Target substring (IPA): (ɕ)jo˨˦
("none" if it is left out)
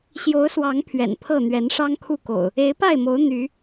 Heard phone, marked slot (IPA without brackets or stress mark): ɕ